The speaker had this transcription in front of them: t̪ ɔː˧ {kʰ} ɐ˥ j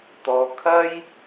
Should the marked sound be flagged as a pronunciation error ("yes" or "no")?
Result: no